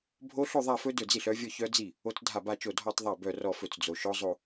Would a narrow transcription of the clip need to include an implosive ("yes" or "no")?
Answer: no